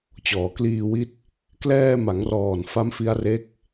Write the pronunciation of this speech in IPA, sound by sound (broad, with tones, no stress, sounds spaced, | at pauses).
t͡ɕ ɔː˩˦ k l iː˧ w i˦˥ t̚ | k l ɛː˧ m a˩˦ ŋ r ɔː˨˩ n f a˦˥ m f i˦˥ a̯ r e˦˥ k̚